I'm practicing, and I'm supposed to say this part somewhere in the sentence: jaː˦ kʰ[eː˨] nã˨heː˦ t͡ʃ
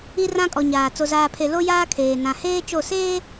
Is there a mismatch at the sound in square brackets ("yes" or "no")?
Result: no